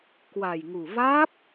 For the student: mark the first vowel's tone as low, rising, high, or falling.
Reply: low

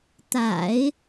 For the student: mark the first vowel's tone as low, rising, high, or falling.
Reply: low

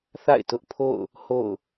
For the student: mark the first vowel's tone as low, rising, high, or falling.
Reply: falling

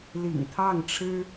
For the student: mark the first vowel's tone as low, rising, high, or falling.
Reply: low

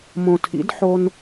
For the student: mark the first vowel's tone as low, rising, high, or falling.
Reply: low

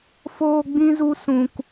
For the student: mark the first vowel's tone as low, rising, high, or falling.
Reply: high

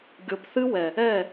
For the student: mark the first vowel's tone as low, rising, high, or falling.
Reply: rising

